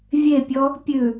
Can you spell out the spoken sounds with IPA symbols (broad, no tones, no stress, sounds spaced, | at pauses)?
vʲ e pʲ ɔ | pʲ ʉ